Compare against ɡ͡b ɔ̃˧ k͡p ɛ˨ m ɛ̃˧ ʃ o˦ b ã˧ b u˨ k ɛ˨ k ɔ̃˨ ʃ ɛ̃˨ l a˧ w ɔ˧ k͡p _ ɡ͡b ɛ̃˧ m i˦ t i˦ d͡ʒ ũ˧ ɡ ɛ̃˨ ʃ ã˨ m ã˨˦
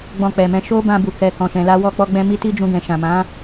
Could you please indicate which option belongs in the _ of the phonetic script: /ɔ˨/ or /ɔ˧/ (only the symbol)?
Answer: ɔ˧